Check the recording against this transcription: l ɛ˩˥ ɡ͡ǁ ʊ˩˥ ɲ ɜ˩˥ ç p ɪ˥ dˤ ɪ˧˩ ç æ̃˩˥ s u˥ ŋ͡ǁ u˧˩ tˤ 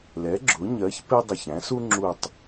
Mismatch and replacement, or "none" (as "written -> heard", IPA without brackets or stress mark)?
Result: none